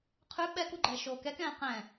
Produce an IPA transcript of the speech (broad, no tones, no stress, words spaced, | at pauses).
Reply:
qʰʉ ɓɛkuɡ͡ǃɛː ʃoːkɛkɛ̃ː qɛ̃